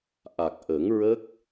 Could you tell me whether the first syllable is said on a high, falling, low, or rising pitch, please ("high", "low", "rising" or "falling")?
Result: low